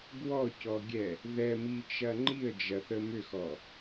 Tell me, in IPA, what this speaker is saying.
ɡ w ɔ c ɔ ɡʲ ɛ | ð ɛ m i t͡ʃ ɐ ŋ͡ǃ i ə̯ d͡ʒ ɐ θ ə m ʏ x ɔ

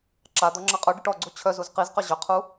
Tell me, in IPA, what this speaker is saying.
ǁ a d̪ ɔ ŋ͡ǁ a qʼ œ ɖ i ʈ ɔ ɡ͡ǀ u t͡ɕʰ œ z u z q i z q ʏ ʑ ʏ qʰ u

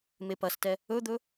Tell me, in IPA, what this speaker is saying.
m e p ɐ s t ɛ | ɵ d̪ ɵ

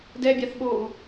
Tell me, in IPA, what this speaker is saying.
d ɛ bʲ a θ ɓ oː u̯

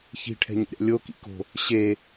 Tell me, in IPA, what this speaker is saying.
ç i̤ ʈʰ ɛ̤ ɲ ɛ̰ ɾʲ a̰ lʲ o k ḭ k o̤ | ɕ e

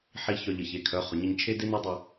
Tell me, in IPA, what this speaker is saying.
ħ i˦ ç œ˧ ʎ ə˨ ç e˨ kʰ œ˨˦ χ ʊ˨ ɲ ə˧ ɲ t͡ʃʰ e˦ d e˦ n o˦ dˤ ʏ˧

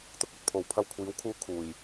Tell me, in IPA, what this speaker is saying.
t̪ ʊ˥ k̚ ɐ˨˥ t̚ pʰ o˨ w pʰ ɐ˧ w kʷʰ iː˨˥ w kʰ uː˧ kʰ uː˨˩ j

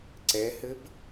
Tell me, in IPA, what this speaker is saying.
ǀ ɛ h ɘ b

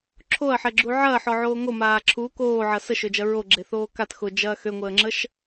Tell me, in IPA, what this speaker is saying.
ǁʰ o ɐ̯ ħ ɛ ɡ͡ǁ u ʕ ɐː ħ ɔ ʕ oː ŋ o m aː ǁʰ u k oː ʕ ɐ s ə ʃ ø d͡ʒ ɐ ɹ o ɡ͡ǁ e θ oː k a t x ʊ d͡ʒ ɐː x ø ŋʷ əː ŋ͡ǁ ə ʃ

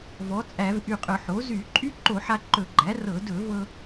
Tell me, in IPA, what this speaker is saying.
v ɔ˩˥ t͡sʼ æ˧˩˧ v ʔ y˧˩ qʼ ɵ˧˩˧ ħ o˩˥ z y˧˩˧ ǃʼ y˥ ǃ o˧˩˧ ħ a˧ ǃ ɵ˧˩˧ ɡ͡ǃ æ˩˥ r ɤ˧˩˧ d ɵ˧˩˧ v ɤ˧

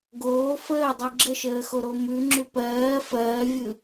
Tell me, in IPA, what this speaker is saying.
ɡ oː f əː dˤ ɯ ɡ͡ǁ ə ʃ əː x o ɾ o m ʉ ŋ͡ǁ ʉ p ɜː f ɜː vʲ ɯ

